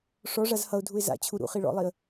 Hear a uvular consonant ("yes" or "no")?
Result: yes